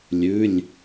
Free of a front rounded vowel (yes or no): yes